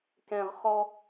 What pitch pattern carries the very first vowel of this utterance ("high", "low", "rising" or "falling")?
low